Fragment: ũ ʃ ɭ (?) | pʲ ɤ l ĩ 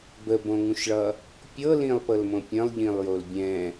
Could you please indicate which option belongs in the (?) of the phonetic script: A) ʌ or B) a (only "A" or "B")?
A